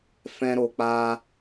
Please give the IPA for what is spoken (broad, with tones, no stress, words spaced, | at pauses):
fɛ̃˦ɾo˧k͡pa˦